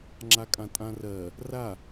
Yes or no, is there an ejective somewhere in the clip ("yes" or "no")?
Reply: yes